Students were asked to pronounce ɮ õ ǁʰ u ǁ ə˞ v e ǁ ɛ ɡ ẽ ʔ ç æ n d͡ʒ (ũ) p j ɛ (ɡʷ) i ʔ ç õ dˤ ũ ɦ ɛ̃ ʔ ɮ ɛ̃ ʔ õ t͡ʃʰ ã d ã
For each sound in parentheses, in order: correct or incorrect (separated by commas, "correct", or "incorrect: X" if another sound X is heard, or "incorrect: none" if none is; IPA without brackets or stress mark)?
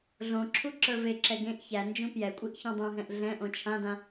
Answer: correct, incorrect: kʷʼ